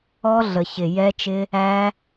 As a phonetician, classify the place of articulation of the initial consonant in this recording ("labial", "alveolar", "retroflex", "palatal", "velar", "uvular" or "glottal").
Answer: alveolar